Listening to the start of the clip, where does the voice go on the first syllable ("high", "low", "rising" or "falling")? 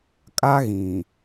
high